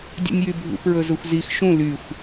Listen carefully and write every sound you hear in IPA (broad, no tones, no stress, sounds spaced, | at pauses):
dʲ ṵ nʲ j y bʱ ṵ p ɹ ɵ z ɵ xʷ z i x ʃ ũ l y xʷ